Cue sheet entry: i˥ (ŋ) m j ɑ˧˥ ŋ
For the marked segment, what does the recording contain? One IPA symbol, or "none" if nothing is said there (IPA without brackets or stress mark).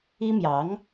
none